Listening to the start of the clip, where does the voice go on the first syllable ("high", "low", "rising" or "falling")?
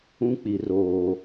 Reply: high